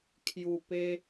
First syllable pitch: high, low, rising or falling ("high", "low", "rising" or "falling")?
low